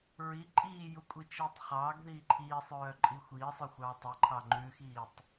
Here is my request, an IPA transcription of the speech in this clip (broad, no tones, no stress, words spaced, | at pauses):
ɹi ǃʼiːjukʷʼit͡ʃiːtˤ χɑːɡðiː ǃʰiːsˤœːǃʼi xʷiːsˤœxʷɑː tˤiǃʰɑ ŋ͡ǃʉxiːtˤ